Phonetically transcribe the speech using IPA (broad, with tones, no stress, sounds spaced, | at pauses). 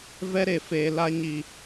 v ɛ˦ ɾ e˨ f eː˨ l a˧ ɲ i˨